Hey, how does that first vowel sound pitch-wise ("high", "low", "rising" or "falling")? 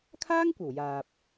high